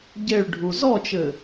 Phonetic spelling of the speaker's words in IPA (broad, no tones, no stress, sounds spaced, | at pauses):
ɟ e ɭ ɖʱ u z ɔ t͡ʃ ɘ